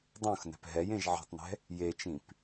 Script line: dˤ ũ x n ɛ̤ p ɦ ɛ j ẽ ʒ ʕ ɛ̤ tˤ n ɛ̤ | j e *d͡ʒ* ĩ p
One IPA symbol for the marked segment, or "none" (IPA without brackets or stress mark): t͡ʃ